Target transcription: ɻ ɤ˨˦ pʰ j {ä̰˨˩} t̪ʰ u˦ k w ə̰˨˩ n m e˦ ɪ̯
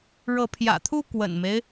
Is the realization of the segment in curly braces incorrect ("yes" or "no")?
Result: no